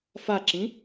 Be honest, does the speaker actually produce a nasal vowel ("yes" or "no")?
yes